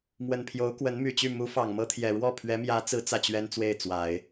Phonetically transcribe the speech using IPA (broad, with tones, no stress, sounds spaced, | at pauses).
m w ə˨˩ n pʰ j o˧˥ ʊ̯ k w ə˧˥ n m y˨˩ t͡ɕ y˥˩ m u˧˥ f ɑ˨˩ ŋ m ɤ˥ t̪ʰ j ɛ˨˩ ɻ w ɔ˥˩ pʰ ɥ ɛ˧˥ m j ä˧˥ t͡s ɹ̩˧˥ t͡s ä˥˩ t͡ɕ ɥ ɛ˥ n t͡s w e˥˩ ɪ̯ t͡s w a˨˩˦ ɪ̯